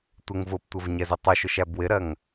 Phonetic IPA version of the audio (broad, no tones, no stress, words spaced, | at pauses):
tʷɪŋ vʊptʷəv ɲɛzətˤuʃʊʃ æbwɪɾɜŋ